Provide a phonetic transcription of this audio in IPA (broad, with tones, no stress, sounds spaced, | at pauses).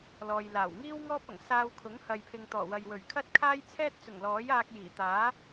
l ɔː˨ j l aː˨˩ w ŋ iː˥ w ŋ ɔː˥ p̚ ɐ˨˩ ŋ s aː˧ w kʰ ʊ˨˥ ŋ h ɐ˨ j pʰ ɪ˨ ŋ t̪ ɔː˨˩ w ɐ˨ j w ɵ˨˩ ɥ kʰ ɐ˥ t̚ kʰ aː˥ j t͡sʰ ɛː˥ t̚ t͡s ʊ˨˩ ŋ l ɔː˨˥ j aː˧ k̚ j iː˨˩ t̪ aː˨˥